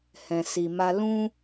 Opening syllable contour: low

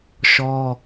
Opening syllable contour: high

